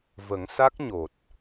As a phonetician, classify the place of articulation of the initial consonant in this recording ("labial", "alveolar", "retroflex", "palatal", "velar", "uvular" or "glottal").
labial